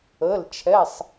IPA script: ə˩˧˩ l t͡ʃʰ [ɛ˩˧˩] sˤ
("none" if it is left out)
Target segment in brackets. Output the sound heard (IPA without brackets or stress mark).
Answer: ɛ˩˧˩